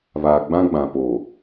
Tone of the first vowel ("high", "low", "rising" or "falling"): low